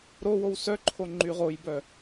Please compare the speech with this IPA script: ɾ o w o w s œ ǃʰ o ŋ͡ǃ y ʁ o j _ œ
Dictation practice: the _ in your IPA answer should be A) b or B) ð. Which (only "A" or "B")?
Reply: A